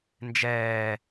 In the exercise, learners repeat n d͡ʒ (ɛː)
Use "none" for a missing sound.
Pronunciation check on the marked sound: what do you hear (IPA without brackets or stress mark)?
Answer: ɛː